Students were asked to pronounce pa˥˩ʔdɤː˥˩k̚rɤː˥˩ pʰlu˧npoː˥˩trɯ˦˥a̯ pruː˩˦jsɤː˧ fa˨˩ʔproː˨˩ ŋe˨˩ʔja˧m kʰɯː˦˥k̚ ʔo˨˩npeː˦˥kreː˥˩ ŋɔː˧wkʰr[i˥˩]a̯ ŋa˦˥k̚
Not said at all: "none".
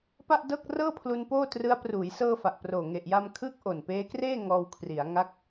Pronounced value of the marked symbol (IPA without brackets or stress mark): i˩˦